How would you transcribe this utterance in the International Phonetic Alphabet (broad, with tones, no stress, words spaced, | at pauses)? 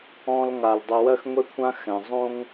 ɔ̃˨lŋa˩l dˤo˨wɜ˦xŋʷe˦kʷʰã˦ xɛ̃˩zˤõ˥ŋ